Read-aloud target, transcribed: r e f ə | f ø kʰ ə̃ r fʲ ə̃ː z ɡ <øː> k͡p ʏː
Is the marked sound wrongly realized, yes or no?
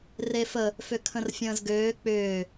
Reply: no